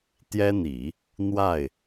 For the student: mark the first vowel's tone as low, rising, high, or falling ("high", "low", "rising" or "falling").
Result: high